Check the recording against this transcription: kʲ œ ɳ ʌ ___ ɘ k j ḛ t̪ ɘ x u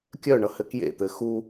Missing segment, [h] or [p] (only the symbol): h